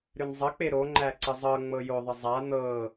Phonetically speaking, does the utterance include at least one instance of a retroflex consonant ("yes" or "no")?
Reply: no